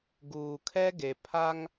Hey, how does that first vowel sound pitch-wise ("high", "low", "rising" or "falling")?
low